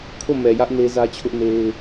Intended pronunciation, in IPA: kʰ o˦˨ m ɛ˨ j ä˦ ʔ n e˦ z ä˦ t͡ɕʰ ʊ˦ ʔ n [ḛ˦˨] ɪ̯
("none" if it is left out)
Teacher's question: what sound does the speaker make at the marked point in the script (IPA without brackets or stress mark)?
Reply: e˦